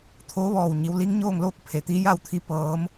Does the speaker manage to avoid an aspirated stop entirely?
no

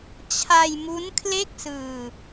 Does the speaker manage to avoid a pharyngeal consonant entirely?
yes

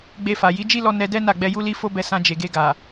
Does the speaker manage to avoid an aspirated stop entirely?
yes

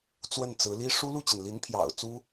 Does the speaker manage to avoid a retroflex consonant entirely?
no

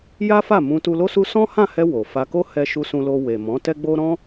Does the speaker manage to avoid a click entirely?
yes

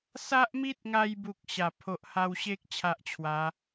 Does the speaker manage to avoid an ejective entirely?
yes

